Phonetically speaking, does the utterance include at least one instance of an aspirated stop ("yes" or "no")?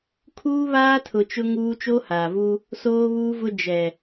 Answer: yes